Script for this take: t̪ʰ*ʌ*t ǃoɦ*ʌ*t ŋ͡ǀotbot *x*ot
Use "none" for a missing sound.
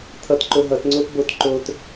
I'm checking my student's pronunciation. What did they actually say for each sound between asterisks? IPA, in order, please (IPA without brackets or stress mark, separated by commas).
ʌ, ʌ, ǃ